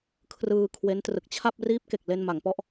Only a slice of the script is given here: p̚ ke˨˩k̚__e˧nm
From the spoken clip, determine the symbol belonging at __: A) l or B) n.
A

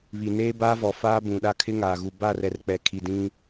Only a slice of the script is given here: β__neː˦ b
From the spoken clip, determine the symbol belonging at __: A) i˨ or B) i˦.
A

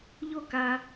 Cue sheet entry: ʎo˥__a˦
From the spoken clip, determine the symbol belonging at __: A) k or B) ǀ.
A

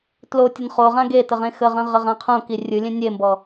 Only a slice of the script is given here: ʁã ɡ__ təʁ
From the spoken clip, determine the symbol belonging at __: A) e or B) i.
A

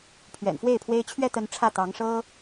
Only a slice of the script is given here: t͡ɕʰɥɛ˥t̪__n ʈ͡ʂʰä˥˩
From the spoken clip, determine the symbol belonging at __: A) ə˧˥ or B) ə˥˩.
A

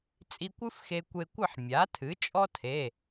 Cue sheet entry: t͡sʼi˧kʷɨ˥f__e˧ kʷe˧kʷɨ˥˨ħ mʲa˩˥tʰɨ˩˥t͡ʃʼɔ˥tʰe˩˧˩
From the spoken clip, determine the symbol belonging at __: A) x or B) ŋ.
A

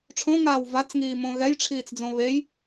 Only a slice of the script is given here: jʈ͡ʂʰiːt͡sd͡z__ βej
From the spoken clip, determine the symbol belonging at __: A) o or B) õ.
B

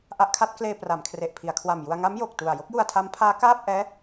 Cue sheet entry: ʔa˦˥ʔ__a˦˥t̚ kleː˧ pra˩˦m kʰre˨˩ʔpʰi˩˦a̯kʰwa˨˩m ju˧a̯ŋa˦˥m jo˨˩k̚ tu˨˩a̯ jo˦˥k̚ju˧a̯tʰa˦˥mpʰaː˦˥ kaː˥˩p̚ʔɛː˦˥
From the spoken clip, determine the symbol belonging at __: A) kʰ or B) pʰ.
A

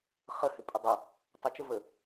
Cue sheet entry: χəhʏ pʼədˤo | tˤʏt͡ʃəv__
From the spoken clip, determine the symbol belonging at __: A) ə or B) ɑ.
A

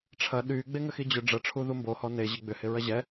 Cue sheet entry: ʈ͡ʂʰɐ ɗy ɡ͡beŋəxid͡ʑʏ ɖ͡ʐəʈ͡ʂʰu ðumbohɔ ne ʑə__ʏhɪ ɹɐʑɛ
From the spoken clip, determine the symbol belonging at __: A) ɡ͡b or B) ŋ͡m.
A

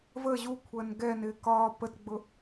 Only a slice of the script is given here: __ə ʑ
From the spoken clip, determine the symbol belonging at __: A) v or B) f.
A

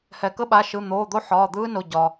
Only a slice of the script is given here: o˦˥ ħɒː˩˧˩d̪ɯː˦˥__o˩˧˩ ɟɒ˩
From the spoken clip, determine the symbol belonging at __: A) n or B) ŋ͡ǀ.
A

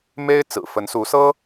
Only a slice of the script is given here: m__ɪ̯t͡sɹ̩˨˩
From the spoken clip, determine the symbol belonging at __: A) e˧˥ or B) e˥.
B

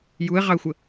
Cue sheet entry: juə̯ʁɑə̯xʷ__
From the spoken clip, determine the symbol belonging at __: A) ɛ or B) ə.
B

